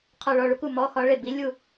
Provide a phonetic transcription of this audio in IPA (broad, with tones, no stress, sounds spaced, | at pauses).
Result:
qʰ ɔ˦˨ ɭ ɔ˦˨ ɭ u˦˥ k u˦˨ m ɔ˧˥˧ x ɒ˦˥ ɭ e˦˨ b i˦˥ lʲ u˦˨